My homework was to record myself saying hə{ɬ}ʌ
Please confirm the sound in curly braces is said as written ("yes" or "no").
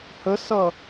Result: no